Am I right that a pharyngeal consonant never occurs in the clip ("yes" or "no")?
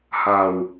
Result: yes